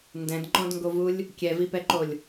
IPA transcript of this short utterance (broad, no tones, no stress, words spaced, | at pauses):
ndɛ̃dŋ͡ǃɔ̃dŋɡovulʲ | kʲɛvipɛǃolʲ